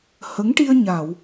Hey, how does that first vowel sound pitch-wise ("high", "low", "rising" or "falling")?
rising